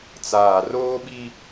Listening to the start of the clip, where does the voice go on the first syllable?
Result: low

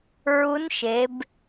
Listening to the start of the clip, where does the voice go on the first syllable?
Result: rising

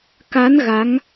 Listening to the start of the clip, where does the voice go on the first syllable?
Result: rising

